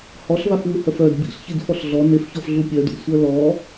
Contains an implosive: no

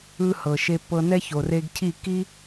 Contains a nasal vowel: no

